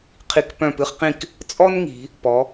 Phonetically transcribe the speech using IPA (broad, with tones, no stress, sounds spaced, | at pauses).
qʰ i˧ k p œ̃˧˩ p ɨ˧ χ q ĩ˧˩ k | t͡sʼ ɔ˥ n ŋ i̤˩˧ | p ɔ˩˧